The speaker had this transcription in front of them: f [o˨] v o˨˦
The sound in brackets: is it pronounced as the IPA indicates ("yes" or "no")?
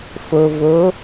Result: yes